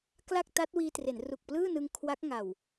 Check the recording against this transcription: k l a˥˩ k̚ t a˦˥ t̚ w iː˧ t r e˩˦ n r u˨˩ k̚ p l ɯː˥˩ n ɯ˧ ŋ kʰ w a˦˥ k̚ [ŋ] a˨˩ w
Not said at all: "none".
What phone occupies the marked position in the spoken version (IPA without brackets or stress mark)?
ŋ